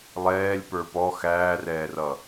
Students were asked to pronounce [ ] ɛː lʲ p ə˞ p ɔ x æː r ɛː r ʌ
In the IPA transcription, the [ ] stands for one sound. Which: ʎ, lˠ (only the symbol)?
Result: lˠ